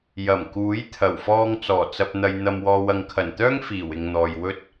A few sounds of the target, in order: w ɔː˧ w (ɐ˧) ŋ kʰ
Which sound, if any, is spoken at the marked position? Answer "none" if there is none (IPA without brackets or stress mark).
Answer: ɐ˨